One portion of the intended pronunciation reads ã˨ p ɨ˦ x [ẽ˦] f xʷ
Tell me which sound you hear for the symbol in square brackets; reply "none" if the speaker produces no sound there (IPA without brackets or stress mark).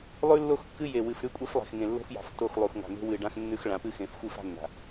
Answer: ẽ˨